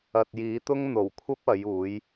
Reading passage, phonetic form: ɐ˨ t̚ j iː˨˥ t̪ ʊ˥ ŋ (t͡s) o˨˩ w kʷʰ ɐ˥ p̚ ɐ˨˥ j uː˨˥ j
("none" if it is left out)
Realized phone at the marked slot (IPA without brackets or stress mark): n̪